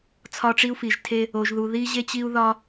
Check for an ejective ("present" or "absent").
absent